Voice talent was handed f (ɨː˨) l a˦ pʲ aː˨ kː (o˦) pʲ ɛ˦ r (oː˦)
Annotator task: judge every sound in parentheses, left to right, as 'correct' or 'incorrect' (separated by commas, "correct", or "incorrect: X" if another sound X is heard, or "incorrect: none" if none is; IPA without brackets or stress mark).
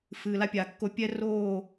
correct, correct, incorrect: oː˦˨